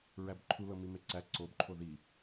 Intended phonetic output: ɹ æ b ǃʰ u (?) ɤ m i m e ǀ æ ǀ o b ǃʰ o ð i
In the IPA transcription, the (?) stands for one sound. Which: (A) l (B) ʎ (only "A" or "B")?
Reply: A